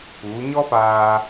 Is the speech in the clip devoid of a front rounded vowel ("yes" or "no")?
yes